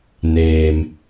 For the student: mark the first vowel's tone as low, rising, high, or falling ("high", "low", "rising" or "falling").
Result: low